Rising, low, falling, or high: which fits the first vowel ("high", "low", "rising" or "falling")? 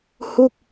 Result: falling